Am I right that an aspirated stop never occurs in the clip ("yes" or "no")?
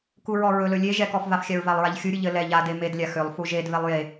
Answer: yes